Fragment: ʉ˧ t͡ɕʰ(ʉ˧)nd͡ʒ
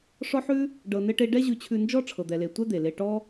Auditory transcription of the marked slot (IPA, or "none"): ʉ˧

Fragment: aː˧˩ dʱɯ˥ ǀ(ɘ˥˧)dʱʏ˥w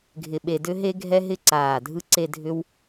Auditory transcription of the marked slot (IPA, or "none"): e˥˧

